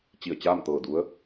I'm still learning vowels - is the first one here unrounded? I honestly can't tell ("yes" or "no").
yes